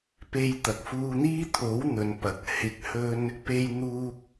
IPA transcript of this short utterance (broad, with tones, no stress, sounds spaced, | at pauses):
p e˧ j t̪ ɐ˨ k̚ f uː˧ n̪ iː˥ t̪ʰ o˨˥ w n̪ ɵ˨˧ n p ɐ˨˥ k̚ h ɪ˧ k̚ h ɵ˥ n | p e˧ j n̪ uː˧ k̚